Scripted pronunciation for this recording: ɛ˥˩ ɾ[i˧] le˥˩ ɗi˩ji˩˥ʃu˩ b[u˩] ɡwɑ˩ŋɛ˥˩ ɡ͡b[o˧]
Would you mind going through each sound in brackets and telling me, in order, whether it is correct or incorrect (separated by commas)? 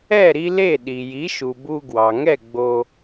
correct, incorrect, correct